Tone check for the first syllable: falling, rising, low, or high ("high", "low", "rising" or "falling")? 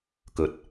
rising